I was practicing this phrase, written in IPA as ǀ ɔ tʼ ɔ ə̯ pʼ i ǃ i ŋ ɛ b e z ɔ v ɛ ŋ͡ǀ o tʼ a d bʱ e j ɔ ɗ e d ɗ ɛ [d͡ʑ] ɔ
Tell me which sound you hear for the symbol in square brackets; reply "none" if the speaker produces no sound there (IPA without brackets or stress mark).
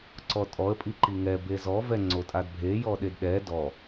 d